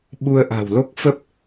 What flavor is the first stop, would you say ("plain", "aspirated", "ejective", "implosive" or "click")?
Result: implosive